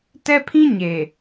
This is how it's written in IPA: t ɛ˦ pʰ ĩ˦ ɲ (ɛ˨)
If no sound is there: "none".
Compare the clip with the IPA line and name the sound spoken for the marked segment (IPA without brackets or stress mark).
e˨